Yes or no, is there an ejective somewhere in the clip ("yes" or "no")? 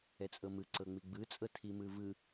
yes